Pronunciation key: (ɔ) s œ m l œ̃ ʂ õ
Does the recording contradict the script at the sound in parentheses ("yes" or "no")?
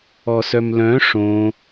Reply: no